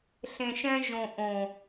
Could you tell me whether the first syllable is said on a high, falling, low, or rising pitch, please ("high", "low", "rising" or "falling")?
low